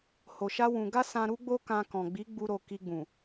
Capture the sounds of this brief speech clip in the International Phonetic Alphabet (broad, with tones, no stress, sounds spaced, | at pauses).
h o˧ ʃ a˦ w ũ˧ ɡ a˦ s ã˧ ɾ u˦ ɡ͡b o˦ k ã˧ k ɔ̃˨ ɡ͡b i˨˦ ɡ͡b u˧ ɾ o˨ k i˧ ɡ͡b ũ˨